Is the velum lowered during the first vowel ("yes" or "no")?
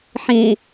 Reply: yes